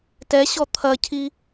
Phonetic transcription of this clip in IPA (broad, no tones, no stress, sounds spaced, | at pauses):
t ɛ ɕ ɔ t̪ʰ ɐ cʰ i